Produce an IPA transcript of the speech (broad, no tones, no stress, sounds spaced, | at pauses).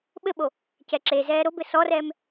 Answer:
ɓ ɘ ɓ o | c ɛ ǁ e z ɛː ɾ o b ɘ s ɔ r ɛː m